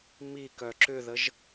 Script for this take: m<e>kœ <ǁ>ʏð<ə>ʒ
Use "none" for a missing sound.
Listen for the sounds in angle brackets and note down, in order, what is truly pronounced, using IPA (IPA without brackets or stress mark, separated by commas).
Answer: i, ǁ, ə